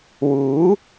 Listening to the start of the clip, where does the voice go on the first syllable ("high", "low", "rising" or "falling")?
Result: rising